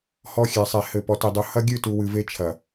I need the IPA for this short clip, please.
h ɔ˦ xʲ ɛ˨ sˤ e˨ h ɘ˨ p ɔ˨ t i˨ dˤ u˨ h ɐ˦ ɡʲ ɨ˦˨ t u˨ w ɨ˨ v e˦ t͡ʃʰ ɐ˨

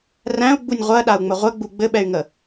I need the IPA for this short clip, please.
r æ̃ u̯ ɡ͡b u nʲ ʁʷ ɜ ɗ a u̯ ŋ͡m ə ʁʷ ɘ ɡ͡b u ɡ͡b ɘ ɓ ɛ y̯ ŋ ə

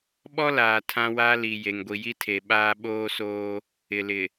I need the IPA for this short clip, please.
ɓ ɔ˦ l aː˨ tʰ ã˦ w a˦ l i˨ j e˨ ŋ ɡʷ i˨ j i˦ tʰ e˨ ɓ aː˦ ɓ oː˦ s oː˦ | ɪ˨ l ɪ˨

